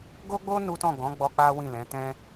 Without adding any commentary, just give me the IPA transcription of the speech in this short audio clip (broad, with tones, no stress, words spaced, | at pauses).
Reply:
ɡo˦ɡ͡bo˦ nu˦tɔ̃˦˨ ɡɔ̃˨˦ɡ͡bɔ˧ k͡pa˦wĩ˦˨ lɛ̃˨˦ tɛ̃˦